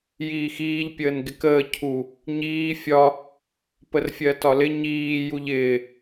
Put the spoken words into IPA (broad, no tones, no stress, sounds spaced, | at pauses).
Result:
j iː x iː ʎ pʲ əː n ɡ ɪ k əː cʰ u | ɲ iː fʲ ɒ | p ə r fʲ ɜ t ɒ l ɪ ɲ iː j u ʎ ɪː